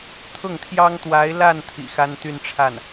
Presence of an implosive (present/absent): absent